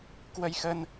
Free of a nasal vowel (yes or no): yes